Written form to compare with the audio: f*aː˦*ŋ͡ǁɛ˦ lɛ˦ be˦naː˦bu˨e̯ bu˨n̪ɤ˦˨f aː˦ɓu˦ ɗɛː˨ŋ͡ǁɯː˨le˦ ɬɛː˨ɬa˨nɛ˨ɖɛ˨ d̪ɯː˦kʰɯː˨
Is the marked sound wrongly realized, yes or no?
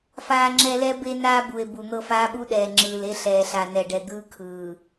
no